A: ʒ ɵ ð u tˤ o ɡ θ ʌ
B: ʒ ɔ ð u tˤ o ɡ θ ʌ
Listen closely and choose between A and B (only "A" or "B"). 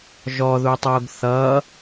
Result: B